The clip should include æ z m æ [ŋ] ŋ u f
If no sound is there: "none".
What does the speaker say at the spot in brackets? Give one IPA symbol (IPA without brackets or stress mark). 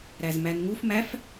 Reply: n